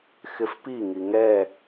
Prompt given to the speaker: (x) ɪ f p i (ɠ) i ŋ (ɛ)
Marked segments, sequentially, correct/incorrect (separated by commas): correct, incorrect, correct